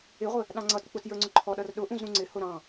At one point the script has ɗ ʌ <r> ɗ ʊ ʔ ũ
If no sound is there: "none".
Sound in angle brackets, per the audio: r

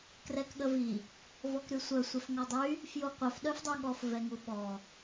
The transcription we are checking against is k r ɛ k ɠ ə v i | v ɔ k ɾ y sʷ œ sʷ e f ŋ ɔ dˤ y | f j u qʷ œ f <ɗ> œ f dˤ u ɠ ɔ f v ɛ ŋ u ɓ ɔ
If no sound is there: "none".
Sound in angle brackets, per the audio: ɗ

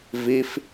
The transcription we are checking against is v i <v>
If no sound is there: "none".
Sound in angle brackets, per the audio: f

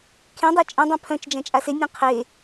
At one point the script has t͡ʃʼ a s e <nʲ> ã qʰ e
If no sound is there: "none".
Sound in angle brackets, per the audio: nʲ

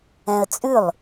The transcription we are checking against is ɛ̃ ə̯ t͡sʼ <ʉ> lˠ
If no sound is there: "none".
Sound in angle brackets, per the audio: ʉ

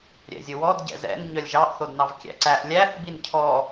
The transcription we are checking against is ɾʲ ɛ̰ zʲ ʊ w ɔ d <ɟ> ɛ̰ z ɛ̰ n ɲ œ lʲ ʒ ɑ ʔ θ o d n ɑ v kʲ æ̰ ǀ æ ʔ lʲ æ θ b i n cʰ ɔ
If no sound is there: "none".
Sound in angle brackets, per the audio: ɟ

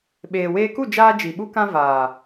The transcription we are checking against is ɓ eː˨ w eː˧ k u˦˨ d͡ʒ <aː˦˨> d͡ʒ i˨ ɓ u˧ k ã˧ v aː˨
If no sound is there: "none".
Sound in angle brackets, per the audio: aː˧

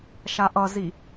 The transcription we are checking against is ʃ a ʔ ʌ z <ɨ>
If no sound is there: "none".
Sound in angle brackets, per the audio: i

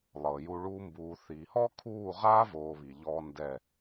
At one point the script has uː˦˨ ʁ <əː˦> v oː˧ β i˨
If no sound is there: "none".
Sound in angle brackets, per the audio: aː˦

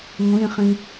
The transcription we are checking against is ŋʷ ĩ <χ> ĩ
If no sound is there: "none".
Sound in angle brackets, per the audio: χ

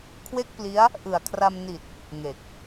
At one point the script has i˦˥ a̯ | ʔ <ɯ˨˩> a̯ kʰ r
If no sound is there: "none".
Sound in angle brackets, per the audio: ɯ˨˩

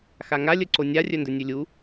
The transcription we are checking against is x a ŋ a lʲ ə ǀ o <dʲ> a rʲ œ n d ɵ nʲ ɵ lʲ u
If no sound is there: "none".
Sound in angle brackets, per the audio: nʲ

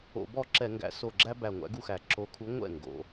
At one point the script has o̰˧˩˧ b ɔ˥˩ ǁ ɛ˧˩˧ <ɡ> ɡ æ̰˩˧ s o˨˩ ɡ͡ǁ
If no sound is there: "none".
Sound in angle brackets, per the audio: ŋ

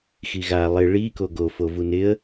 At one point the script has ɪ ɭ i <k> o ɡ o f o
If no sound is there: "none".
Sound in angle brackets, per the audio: k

